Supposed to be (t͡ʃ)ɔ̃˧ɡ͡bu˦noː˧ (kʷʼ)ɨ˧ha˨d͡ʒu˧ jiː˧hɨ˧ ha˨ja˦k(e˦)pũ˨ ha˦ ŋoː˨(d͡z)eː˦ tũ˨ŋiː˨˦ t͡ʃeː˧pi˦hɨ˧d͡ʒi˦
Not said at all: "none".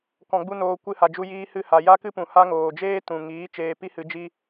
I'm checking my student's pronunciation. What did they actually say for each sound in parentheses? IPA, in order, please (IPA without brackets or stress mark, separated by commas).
k, kʷ, ɨ˦, d͡ʒ